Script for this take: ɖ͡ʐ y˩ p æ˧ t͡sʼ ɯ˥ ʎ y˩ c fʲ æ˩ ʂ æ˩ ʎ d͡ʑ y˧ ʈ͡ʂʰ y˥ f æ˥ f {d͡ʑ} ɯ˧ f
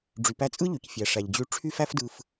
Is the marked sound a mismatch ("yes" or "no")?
yes